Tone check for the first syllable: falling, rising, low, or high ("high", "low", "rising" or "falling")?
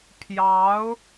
rising